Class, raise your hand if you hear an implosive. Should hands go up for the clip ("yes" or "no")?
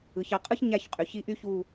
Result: no